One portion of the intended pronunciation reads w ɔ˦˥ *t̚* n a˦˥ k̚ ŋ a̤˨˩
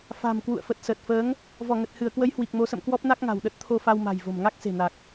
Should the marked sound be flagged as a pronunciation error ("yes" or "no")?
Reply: yes